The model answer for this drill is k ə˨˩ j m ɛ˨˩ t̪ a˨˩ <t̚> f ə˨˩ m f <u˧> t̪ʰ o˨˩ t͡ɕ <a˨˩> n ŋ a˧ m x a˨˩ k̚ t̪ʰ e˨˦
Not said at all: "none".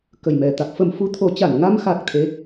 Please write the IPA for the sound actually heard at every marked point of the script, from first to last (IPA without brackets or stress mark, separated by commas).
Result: k̚, u˧, a˧˩